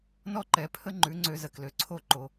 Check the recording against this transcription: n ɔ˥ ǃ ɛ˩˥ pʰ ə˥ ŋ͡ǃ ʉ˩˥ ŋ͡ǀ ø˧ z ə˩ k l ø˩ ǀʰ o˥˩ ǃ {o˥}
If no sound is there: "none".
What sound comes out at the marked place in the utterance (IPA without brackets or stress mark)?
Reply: o˩